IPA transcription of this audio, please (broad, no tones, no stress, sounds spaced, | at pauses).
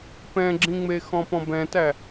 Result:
p ɛ̃ ɡ͡ǁ ĩ ŋ͡m e x ɔ̃ p ɔ̃ b ɛ̃ t æ